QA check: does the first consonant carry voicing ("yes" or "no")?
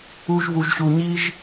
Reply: yes